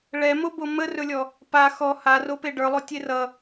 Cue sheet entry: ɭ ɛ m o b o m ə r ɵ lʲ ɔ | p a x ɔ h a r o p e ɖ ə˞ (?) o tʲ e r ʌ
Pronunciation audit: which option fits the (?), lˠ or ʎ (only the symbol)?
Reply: lˠ